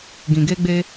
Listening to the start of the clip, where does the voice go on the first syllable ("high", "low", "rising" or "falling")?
low